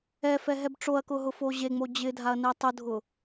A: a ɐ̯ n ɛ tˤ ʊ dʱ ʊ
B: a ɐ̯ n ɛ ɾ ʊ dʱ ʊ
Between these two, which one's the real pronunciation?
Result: A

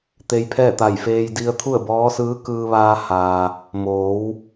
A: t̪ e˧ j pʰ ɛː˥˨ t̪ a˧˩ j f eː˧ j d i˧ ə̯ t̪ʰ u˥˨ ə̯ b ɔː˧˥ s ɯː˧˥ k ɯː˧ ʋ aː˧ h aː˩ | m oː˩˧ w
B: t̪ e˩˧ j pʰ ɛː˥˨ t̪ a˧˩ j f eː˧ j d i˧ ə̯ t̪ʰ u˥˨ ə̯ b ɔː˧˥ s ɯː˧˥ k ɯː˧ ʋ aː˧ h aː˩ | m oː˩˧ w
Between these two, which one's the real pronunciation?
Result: A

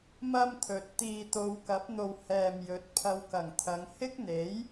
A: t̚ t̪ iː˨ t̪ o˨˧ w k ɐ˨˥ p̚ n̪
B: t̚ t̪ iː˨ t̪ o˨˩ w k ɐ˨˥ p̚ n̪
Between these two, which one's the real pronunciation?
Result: A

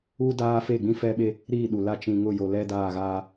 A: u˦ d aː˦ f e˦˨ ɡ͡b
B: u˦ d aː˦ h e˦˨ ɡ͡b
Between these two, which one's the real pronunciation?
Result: A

